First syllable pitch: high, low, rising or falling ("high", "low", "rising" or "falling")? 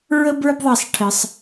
high